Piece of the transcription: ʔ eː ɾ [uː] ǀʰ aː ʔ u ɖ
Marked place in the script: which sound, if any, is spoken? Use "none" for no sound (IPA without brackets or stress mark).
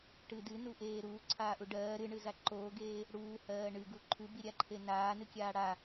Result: uː